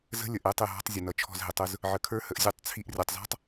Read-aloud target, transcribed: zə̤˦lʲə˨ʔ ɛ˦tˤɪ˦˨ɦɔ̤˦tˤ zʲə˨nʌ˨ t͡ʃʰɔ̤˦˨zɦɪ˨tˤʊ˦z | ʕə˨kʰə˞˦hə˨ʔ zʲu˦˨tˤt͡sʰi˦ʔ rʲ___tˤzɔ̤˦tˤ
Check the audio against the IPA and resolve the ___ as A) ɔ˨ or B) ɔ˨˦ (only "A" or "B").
A